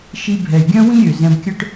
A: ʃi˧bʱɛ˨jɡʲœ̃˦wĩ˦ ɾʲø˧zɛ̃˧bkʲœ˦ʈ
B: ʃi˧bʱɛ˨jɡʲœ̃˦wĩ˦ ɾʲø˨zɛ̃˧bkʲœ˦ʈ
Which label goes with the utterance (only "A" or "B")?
B